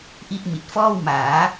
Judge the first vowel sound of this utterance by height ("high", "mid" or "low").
high